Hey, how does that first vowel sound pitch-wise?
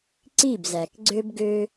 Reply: falling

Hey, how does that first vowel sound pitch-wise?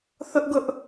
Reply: high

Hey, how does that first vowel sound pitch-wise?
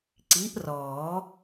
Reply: rising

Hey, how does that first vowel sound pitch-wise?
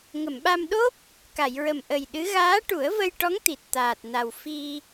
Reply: low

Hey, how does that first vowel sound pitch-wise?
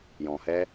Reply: low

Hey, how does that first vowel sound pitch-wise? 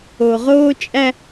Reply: low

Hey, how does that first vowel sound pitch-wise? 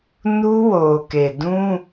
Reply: high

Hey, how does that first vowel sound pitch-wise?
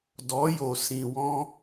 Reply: rising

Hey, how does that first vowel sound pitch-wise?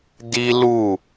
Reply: high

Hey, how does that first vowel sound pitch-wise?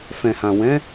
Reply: low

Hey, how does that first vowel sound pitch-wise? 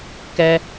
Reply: high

